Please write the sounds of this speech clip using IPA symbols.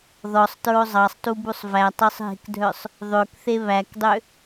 ðɔsˤtɹo zˤɑsˤtubusˤ vætˤøsˤɦe̤kdʱœsˤ | ðˤøkθe βækdˤø

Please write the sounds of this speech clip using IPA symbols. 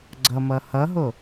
ɡ͡ǀʌmʌ hʌɦo

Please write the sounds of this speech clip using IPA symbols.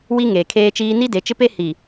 wi˦ŋeː˨kʰeː˦t͡ʃiː˦ ni˦de˨˦t͡ʃɪ˦pe˦ hi˨

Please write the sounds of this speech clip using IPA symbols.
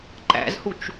ǃæ̰zhut͡ʃ

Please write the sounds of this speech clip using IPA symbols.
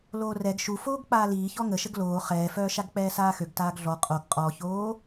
loːrɛɡ ʃu foːɡk͡paːliː çɔŋəʃəɡ loː χɛːfœː ʃaɡk͡pɛːsaːxøɡ taːɡɮɔ qʼoɡ qʼɔçoː

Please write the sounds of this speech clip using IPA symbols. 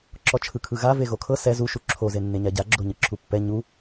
ǁɔt͡ʃʰɯkʰɯɣa veɣokʰɤ sɛ zuʃu ǁʰozenːeɲa ɟaɡ͡ǁo ɲɯǁʰupːɛ ɲu

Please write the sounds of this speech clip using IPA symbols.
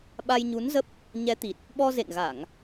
ɓa˧jɲu˨˦nzə˦˥p̚ | ɲɛ˨˦t̪i˨˩t̚ | ɓɔ˧zḛ˧˨ŋɣa˧˩˨ŋ

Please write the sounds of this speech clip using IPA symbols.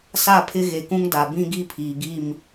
sa˦˨pʰɪ˦ ɣe˨kũ˦ŋda˨ bĩ˦ɡi˦pʰiː˨ɡi˦˨m

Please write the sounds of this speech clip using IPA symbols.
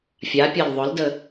fʲapʲɐl ðˤʊldə

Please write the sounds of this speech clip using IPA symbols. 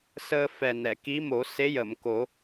səː˧ fɛ˨˩nɛ˨˩˨ ki˧˥mo˨˩˦se˧˥ jə˨˩˨mko˨˩˦

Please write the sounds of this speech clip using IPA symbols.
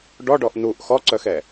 ɖɔɖɔʔ nuʔ xɔǀœxɛ

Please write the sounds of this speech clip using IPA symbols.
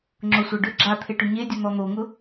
ŋ͡ǁʊsʷa ɖʏ ɡ͡ǁat̪ʰeʈʏ ɲedʲʊn̪ɔ n̪oŋʊ

